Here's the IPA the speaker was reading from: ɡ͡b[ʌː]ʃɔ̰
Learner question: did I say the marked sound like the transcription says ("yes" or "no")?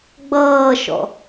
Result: yes